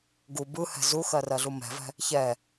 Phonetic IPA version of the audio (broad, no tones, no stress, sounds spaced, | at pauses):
ɡ u b ɯ h ɛ̤ z u x ɜ r ɜ ɮ u m ɛ̤ v ɛ̤ | ç ɛ